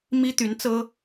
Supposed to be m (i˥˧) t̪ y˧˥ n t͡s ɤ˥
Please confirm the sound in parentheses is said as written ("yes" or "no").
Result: no